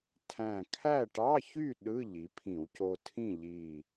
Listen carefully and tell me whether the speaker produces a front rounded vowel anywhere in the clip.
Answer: yes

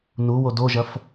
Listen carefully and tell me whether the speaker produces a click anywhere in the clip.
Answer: no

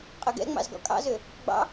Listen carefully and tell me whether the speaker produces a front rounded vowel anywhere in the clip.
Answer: yes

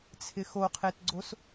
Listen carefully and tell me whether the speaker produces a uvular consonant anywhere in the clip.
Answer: yes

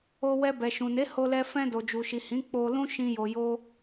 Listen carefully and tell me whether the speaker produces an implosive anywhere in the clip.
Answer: no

